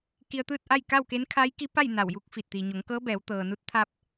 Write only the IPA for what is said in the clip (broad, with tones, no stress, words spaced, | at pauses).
ki˧ə̯t̪ɯː˥˨t̚ ʔa˥˨jka˥˨wke˧˥n kʰa˧˥j ki˧˥pa˥˨j na˧˩wju˥˨k̚ fi˧˩t̚ t̪iː˩ɲo˩˧ŋkɤː˧˥bɛː˩˧w t̪ɤː˩nu˧˥t̚ t̪ʰa˧p̚